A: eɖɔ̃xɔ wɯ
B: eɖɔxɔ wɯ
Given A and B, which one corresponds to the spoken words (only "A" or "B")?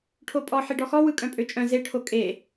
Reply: B